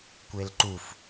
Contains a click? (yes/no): yes